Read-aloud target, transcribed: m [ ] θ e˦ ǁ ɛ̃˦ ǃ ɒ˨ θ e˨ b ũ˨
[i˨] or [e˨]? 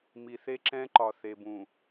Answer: i˨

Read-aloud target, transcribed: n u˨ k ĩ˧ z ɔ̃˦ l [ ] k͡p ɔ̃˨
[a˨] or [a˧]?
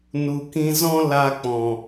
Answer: a˧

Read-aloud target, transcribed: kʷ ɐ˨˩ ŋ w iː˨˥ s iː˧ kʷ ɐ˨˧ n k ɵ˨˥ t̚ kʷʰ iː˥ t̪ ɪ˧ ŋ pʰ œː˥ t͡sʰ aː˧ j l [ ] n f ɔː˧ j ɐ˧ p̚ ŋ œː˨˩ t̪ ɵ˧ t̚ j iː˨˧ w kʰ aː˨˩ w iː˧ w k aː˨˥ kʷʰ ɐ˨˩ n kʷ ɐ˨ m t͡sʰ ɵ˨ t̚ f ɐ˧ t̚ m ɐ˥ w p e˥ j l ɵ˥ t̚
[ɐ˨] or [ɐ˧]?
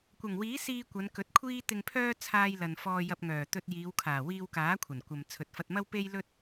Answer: ɐ˨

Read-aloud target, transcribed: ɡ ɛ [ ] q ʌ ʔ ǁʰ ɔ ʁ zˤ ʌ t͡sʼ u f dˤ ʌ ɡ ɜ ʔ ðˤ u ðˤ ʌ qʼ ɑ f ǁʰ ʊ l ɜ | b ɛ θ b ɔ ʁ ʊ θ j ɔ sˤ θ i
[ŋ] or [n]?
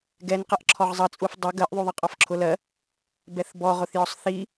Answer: n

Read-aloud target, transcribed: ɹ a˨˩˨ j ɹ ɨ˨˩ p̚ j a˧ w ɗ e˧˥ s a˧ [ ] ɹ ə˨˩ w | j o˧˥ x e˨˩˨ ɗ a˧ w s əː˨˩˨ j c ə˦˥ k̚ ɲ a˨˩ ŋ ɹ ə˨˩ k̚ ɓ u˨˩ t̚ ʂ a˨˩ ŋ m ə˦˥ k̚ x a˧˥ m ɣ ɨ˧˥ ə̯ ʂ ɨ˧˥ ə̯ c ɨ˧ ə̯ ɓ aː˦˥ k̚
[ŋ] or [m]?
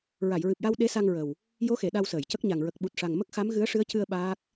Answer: ŋ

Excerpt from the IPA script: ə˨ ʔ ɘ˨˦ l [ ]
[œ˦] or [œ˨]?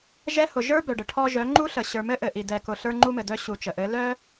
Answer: œ˦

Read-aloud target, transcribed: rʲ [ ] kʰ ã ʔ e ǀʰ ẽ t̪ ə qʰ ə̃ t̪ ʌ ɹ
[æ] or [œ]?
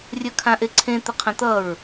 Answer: œ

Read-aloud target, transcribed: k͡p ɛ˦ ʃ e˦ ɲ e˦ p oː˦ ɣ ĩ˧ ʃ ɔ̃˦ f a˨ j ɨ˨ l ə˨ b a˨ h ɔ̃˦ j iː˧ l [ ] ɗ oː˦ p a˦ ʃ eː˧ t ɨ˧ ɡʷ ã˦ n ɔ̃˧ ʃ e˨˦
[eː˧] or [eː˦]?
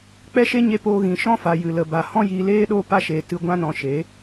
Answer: eː˦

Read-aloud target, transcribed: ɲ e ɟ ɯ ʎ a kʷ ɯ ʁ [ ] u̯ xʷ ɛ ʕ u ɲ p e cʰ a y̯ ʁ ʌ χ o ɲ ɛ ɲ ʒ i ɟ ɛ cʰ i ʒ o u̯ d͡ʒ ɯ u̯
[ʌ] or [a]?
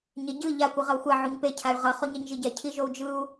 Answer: ʌ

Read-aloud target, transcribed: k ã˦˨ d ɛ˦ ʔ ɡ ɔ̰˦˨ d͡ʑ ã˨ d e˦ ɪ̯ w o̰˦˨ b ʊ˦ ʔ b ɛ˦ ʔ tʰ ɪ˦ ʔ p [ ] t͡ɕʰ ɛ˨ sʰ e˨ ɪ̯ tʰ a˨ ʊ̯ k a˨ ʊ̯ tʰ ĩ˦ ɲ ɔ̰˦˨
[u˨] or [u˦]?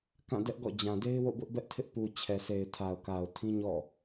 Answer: u˨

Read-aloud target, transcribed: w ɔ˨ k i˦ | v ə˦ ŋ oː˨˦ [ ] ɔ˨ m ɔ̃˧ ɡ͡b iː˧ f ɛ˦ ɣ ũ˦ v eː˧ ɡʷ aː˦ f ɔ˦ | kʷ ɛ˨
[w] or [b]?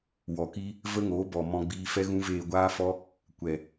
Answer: b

